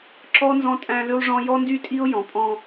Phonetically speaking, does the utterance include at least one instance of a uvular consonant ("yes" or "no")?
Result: no